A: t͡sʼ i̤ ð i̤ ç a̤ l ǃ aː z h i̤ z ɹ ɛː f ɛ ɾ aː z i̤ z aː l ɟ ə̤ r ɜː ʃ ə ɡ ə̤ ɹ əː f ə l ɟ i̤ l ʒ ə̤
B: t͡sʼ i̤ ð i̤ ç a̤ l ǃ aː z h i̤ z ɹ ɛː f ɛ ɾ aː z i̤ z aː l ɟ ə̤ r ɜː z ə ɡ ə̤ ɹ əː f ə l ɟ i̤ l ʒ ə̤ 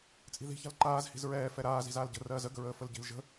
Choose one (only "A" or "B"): B